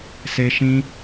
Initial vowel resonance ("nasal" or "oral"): oral